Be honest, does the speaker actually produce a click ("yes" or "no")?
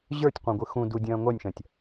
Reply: no